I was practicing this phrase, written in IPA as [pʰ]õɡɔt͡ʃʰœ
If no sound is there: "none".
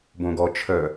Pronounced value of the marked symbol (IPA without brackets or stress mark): b